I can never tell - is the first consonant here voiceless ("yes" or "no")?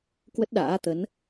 yes